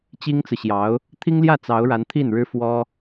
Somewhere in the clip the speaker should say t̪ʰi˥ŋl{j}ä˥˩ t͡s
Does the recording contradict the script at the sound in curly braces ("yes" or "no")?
no